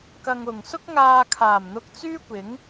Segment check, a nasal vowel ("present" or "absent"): absent